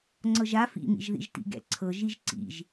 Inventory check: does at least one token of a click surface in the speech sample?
yes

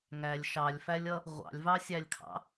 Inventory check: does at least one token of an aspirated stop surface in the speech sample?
yes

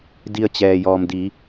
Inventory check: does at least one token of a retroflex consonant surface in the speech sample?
no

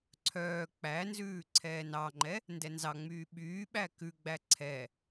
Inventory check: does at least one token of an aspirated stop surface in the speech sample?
yes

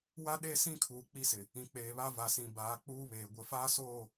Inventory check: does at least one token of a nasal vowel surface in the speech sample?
yes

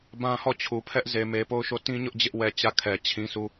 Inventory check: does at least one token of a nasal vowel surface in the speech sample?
yes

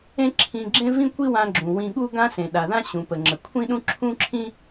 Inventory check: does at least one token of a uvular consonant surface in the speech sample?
no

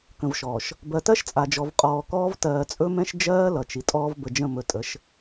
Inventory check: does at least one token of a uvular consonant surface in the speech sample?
yes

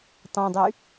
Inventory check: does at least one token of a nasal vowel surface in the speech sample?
yes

